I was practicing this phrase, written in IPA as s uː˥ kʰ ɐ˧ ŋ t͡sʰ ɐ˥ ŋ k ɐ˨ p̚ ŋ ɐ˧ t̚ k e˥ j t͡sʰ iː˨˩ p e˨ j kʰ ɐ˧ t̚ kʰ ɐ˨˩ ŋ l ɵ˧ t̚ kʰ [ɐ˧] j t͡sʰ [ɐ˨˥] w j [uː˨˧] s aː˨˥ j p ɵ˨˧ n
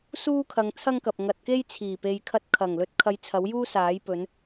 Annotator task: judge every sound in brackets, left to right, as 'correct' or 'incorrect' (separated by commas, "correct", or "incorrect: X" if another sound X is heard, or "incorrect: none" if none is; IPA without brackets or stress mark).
correct, correct, incorrect: uː˥